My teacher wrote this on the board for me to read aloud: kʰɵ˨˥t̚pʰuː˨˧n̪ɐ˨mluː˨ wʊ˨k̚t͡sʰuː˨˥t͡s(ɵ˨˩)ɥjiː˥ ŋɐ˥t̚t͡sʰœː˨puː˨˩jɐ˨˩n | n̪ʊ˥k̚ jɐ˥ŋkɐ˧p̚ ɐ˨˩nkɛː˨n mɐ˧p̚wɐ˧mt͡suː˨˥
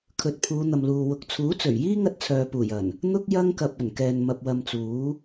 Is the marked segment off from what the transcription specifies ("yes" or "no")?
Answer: no